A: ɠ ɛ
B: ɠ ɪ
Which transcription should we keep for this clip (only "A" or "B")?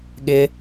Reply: B